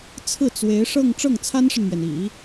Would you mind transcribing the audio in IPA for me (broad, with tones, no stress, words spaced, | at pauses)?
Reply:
t͡sʰɹ̩˥˩t͡swe˧˥ɪ̯ʂɤ˥˧ŋ ʈ͡ʂɤ˥˩ŋt͡sʰa˥nʂə˨nmɥɛ˩n ḭ˨˩˦